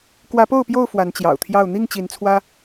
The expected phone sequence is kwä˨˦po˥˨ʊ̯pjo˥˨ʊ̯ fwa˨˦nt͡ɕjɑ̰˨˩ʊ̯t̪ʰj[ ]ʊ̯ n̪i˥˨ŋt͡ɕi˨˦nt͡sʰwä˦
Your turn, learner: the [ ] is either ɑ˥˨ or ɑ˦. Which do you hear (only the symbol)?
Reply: ɑ˥˨